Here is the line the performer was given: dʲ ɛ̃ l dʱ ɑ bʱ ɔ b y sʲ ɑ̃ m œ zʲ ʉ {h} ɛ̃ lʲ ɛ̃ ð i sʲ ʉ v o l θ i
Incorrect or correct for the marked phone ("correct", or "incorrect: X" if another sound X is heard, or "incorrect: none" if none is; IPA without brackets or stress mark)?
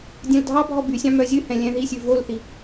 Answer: correct